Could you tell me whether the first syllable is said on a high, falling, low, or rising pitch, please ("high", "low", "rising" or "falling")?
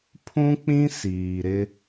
high